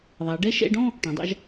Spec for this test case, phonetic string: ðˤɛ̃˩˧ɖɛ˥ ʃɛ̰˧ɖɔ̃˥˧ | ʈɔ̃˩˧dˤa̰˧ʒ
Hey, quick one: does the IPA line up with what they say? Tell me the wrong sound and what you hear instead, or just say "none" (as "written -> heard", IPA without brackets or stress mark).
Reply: ɛ̃˩˧ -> ɛ˩˧